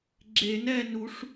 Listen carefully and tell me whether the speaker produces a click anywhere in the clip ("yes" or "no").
yes